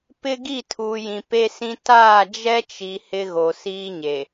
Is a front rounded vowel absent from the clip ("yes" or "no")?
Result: yes